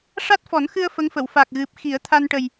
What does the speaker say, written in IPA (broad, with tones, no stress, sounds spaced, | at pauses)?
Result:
ʂ a˦˥ t̚ f ɔ˨˩˦ n x ɨ˧ ə̯ f ə˧˥ ŋ f ə˨˩˨ w f a˨˩ k̚ ɣ ɨ˨˩ p̚ x i˨˩˦ ə̯ t̪ʰ a˧ n ʈ ə˨˩ j